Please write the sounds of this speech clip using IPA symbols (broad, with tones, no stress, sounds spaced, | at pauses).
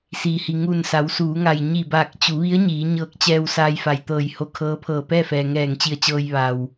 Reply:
s iː˩ h i˩ ŋ u˧˩ n s a˩˧ w s uː˩˧ ŋ a˩ j ɲ i˧˩ b aː˧˩ k̚ t͡ɕ u˩˧ ʋ i˧˥ ə̯ ɲ iː˩˧ ɲ ɤː˧ k̚ t͡ɕ ɛː˧ w s aː˧ j f a˩ j t̪ ɤː˧˩ j h o˧˥ kʰ ɤː˧˥ pʰ ɤː˧˩ p ɛː˥˨ f ɛː˩ ŋ ɛː˧˩ ŋ t͡ɕ i˧˩ ə̯ t͡ɕ ɤː˧ j ʋ a˩ w